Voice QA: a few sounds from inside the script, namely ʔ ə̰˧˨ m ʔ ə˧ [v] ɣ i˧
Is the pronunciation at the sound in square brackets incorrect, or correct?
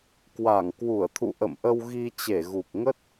incorrect